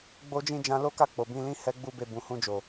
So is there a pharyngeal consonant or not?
no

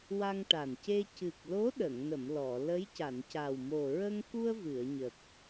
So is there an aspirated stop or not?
no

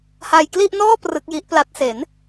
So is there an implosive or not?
no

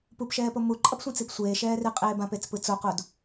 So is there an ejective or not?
yes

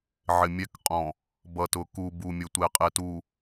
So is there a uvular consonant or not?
yes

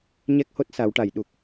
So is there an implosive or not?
yes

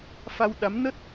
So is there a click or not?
no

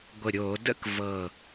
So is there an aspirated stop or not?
no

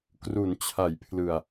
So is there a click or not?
no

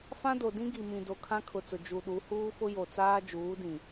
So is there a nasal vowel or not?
yes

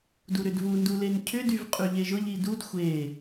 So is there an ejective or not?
yes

